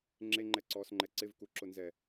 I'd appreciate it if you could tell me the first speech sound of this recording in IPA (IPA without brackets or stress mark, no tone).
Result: ŋ͡ǁ